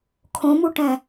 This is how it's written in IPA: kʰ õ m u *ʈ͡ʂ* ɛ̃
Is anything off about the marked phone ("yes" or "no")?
yes